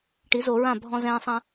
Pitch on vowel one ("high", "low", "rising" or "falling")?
rising